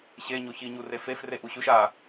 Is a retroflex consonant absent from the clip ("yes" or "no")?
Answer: yes